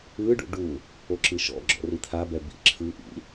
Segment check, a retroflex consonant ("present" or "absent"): present